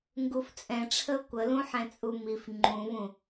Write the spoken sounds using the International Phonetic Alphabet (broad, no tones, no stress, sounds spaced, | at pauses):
ŋ ɡ u f t͡sʼ ɛ̃ ʈ͡ʂʰ ə ʊ̯ kʷ ə l ũ ħ ɛ̃ t͡sʼ u m i f ŋ͡ǃ ũ v ũ